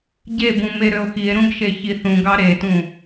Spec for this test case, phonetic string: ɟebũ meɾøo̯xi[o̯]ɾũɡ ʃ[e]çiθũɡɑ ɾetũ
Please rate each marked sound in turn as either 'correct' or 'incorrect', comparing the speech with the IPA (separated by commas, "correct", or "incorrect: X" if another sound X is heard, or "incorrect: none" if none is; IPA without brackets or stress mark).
incorrect: e̯, correct